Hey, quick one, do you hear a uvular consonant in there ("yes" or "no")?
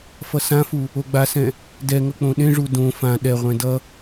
yes